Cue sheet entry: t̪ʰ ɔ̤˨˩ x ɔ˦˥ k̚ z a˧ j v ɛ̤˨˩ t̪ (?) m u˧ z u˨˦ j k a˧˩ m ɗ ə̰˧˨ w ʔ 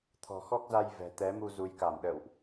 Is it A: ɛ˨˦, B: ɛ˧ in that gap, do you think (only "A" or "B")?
A